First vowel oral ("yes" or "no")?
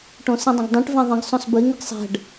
no